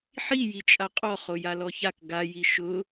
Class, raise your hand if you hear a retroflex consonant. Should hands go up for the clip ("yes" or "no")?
no